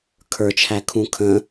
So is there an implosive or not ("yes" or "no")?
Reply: no